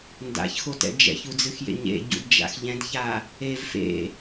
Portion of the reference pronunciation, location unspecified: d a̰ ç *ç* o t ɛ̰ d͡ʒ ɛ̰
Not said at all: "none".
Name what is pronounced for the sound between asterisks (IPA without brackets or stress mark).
x